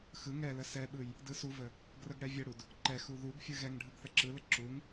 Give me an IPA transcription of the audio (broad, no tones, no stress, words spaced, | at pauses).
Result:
xɯ ŋɛlə sɛɓɯj | dɯsuvə | ɡrəɡɽɛvʲəɽud | ǃɛxu ðuɡfʲɯ ɣɛŋ ɖʱɯɡθəǁɯlə ǁuŋ